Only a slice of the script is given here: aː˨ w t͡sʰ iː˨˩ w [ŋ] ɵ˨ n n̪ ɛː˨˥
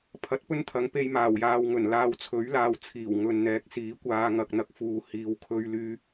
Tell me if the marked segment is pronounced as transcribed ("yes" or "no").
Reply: yes